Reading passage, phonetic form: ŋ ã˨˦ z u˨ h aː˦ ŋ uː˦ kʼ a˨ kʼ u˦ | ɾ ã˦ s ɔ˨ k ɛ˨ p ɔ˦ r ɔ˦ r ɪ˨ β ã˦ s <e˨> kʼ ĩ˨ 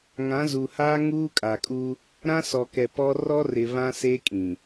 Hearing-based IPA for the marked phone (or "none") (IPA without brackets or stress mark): e˦